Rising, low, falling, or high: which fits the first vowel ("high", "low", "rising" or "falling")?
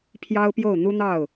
high